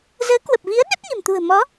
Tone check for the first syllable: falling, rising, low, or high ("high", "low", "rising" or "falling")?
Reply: rising